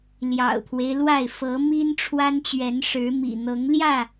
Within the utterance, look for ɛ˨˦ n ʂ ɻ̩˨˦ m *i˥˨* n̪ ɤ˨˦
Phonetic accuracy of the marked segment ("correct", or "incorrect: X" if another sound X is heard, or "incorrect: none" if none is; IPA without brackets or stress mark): incorrect: ḭ˨˩